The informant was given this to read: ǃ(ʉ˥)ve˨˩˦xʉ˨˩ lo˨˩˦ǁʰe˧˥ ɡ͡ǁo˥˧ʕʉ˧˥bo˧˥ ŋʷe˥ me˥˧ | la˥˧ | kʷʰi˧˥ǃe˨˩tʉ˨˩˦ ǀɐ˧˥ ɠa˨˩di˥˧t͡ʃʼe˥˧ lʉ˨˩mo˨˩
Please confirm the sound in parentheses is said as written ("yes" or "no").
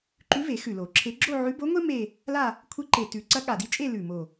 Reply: no